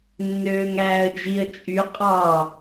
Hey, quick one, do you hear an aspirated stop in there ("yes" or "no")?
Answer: no